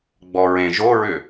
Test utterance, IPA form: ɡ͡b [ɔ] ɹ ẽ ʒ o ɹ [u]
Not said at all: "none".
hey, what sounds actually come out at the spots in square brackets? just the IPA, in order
ɔ, ʏ

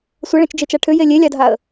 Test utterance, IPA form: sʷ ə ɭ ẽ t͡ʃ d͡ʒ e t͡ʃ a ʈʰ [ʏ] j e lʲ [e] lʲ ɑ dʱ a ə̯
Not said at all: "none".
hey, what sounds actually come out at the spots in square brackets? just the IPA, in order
ʏ, e

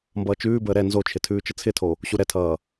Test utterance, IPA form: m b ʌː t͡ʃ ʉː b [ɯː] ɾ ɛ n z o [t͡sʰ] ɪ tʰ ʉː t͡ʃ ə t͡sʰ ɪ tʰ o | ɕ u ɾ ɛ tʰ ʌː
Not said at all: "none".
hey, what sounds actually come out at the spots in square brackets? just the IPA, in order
əː, t͡ʃʰ

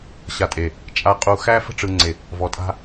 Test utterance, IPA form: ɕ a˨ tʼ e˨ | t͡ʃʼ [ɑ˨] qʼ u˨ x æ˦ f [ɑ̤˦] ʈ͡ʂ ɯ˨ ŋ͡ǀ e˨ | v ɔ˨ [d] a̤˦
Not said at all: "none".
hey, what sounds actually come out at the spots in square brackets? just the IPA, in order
a˨, ə̤˦, tʼ

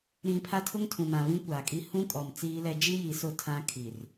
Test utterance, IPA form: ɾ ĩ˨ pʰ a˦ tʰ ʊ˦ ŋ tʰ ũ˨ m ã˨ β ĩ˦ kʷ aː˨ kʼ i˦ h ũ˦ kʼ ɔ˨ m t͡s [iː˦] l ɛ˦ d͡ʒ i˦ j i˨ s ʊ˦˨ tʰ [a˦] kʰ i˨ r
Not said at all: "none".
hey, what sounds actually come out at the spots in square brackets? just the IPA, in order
iː˦, ã˦

